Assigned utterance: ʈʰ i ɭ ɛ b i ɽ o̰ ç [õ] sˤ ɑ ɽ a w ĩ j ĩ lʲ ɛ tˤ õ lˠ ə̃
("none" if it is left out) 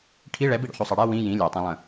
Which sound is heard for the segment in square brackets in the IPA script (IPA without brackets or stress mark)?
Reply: o